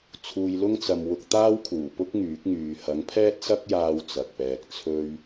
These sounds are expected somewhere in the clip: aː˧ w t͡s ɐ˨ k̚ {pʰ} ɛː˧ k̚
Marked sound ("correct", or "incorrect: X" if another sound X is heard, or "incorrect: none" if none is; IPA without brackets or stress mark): incorrect: p